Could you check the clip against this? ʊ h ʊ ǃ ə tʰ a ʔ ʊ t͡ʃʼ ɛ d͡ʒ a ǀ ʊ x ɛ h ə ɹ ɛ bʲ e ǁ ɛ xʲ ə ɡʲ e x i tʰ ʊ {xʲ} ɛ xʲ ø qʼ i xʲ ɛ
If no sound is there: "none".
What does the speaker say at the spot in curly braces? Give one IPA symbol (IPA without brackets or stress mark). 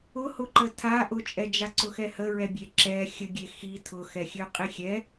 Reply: x